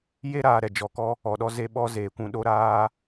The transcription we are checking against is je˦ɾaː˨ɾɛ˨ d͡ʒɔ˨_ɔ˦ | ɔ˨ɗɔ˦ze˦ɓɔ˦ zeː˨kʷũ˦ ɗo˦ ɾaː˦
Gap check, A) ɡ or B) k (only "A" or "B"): B